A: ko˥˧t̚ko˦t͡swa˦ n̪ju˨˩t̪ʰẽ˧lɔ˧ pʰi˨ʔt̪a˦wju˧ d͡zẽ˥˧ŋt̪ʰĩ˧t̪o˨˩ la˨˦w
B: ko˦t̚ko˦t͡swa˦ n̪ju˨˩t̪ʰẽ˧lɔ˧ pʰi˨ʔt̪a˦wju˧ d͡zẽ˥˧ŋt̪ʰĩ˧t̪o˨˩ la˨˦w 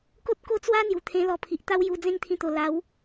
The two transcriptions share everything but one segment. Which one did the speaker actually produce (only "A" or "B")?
B